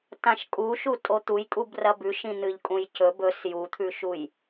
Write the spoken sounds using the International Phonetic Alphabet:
t ã ʃ kʼ u ʃ u tʼ o t̪ u j kʼ u b r ɐ b ʉ ʃ ĩ n̪ ɨ ʎ kʼ ũ j c ɵ b ɵ s j u t̪ʰ ʉ ʃ u j

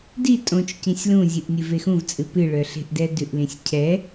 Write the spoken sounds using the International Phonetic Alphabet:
d i tʼ õ t͡ʃ c ĩ sʲ l ũ zʲ ɨ ʔ nʲ ɨ v e x ũ v t͡sʼ ɨ p ɨ ɭ œ ɬ e̤ ʔ d ɛ d ʉ ʔ l ĩ sʲ cʰ ɛ

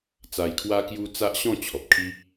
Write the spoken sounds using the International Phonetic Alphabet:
t͡s a˧ j kʰ w a˦ k j u˦ t͡s a˦ ʔ ɕ ɔ̃˥˧ t͡ɕʰ ɔ˨ p̚ kʰ i˦

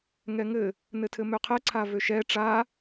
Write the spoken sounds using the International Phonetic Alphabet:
ŋ ɛ ŋ ɘ | n ɘ tʰ ɘ m ø qʰ ɛ ǀʰ a v ø ʃ ɛ ʈ͡ʂ a

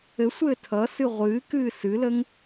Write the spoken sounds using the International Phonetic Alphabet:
ɘ sʷ ɘː tʰ ʌ s ɨ ʁʷ ɨː k ɨː s ɨ l ə ŋ

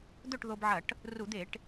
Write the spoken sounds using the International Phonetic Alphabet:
d̪ ɵ˥˨ ʈ ð o˧ b ʕ ɐ˧˩˧ ʈ | r u˧˩˧ d̪ e˧˩˧ ʈ

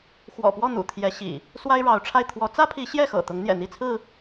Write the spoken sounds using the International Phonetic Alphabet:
x w ɔ̰˨˩ p w ɔ˥˨ n̪ ṵ˨˩ t̪ʰ j ɛ˨˦ ɕ ḭ˨˩ | s w a˦ ɪ̯ ɻ ɑ˨˦ ʊ̯ ʈ͡ʂʰ a˥˨ ɪ̯ t̪ʰ w ɔ˨˦ t͡s ä˦ pʰ i˨˦ ɕ j ɛ˥˨ x ɤ̰˨˩ t̪ ʊ˨˦ ŋ n̪ j ɛ̰˨˩ n̪ i˥˨ t͡sʰ ɹ̩˥˨

